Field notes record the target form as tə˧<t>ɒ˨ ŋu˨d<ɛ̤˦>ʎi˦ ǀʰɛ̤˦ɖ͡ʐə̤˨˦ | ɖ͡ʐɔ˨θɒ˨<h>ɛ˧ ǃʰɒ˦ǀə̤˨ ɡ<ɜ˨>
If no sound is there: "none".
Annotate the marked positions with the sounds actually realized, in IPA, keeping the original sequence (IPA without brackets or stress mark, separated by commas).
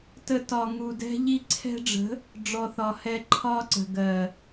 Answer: t, ɛ̤˦, h, ɜ˨